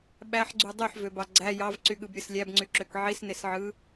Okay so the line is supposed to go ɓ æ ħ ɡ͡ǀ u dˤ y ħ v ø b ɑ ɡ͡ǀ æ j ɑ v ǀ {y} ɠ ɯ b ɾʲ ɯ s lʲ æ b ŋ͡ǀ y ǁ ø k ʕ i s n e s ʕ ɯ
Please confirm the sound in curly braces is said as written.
yes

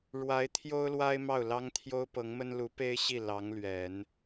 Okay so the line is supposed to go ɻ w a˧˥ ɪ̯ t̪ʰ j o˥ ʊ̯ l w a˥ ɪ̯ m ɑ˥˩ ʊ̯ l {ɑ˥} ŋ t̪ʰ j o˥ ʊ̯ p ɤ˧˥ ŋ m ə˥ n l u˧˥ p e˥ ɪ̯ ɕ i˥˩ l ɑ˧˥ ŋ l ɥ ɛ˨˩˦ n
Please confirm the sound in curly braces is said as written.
yes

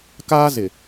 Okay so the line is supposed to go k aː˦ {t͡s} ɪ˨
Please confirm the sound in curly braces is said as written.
no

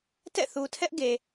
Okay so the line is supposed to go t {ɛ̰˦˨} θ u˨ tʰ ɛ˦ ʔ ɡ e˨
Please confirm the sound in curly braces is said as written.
yes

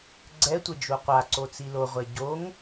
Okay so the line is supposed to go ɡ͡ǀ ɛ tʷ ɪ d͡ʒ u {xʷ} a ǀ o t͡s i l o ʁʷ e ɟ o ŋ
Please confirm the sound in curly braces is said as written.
no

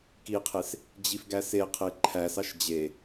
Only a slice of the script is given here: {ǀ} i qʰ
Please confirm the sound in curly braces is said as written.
no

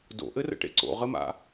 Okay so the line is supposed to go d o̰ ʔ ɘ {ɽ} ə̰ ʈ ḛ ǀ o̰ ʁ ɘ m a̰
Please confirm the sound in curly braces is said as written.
no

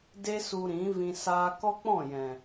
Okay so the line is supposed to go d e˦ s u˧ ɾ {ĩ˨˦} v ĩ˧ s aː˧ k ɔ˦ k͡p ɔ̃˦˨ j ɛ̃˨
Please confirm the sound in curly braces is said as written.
yes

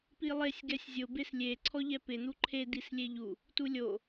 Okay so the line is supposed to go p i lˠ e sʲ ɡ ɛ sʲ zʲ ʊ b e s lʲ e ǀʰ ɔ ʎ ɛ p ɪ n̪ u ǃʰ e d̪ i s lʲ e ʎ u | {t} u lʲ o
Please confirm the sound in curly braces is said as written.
yes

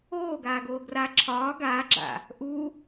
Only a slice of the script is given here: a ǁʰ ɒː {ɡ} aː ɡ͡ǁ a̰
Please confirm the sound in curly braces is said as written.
yes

